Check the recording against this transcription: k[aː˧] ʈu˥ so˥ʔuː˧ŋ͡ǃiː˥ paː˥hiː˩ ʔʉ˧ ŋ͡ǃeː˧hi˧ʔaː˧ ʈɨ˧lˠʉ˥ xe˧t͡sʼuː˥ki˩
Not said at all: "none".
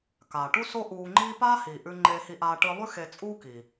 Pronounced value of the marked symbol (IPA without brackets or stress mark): aː˩